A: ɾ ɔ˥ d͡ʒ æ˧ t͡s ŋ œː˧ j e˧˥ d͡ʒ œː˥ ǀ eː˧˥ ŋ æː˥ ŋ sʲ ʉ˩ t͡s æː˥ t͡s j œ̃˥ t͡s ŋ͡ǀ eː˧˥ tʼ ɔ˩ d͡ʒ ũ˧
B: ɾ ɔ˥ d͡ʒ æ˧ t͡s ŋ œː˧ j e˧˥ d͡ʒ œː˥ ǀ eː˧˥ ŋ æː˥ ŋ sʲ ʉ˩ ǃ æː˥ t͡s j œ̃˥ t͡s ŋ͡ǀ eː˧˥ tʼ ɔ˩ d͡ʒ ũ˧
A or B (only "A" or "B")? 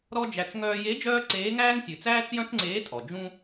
A